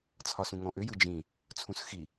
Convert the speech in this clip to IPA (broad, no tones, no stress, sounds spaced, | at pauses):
t͡sʰ ɒ s ũ ŋ ɔ̃ ʔ ʏ j ɯ d͡ʒ ĩ | t͡sʰ ũ s x i